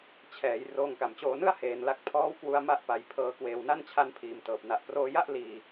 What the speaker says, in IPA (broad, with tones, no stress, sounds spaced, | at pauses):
t͡ɕʰ ɛː˩˦ j r oː˧ ŋ k a˨˩ m t͡ɕ oː˧ n ɯ˥˩ a̯ h eː˧ n l a˦˥ k̚ pʰ ɔː˦˥ w k w u˧ a̯ m a˥˩ ʔ p a˧ j pʰ ɤː˧ k w eː˧ w n a˥˩ n t͡ɕʰ a˧ n pʰ iː˨˩ m t ɤː˨˩ p̚ n a˨˩ ʔ p r oː˧ j a˥˩ ʔ l iː˧